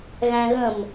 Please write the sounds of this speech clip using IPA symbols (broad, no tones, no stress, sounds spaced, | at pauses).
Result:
ɣ æ̃ ɣ ə̃ m